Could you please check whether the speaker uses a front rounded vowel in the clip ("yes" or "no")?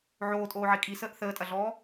no